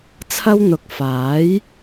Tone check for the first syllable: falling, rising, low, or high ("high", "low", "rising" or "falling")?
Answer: high